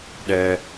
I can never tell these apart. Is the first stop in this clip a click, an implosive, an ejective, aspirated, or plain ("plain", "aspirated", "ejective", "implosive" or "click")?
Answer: implosive